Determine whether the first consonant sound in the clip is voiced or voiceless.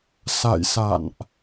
voiceless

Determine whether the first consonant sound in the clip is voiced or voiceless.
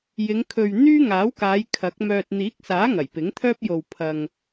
voiced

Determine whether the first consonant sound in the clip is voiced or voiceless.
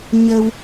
voiced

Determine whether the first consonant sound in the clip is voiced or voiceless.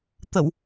voiceless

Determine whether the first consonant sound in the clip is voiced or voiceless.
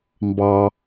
voiced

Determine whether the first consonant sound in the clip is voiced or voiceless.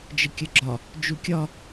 voiced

